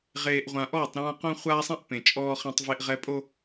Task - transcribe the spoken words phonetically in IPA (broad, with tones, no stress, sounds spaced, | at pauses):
ʁ eː˨ ʔ ʁʷ ã˨ ʔ ɔː˦˨ tˤ ɾ ãː˦ q õ˦ χʷ aː˦ sˤ ɛ̃˦ ʔ p ẽ˨ t͡ʃʼ ɔː˦ χ ẽ˦ tˤ v e˦ ʔ ʁ ɛ˦ pʼ o˦